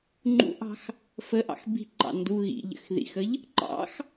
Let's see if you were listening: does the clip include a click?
yes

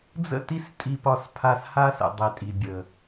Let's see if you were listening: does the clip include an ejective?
yes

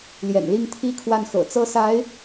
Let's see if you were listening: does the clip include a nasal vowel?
no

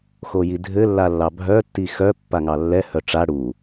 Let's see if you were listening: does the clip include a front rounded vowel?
yes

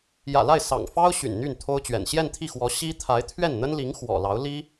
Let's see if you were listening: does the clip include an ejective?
no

